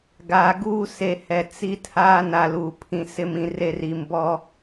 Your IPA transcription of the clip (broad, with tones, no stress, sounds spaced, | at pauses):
ɡ aː˨ ɡ uː˦ s e˨ h ɛ˨ t͡s i˦ tʰ a˦ n a˨ l uː˨ pʰ ĩ˨ s ɪ˨ m ĩ˨ r e˨ r i˨ m b ɔ˦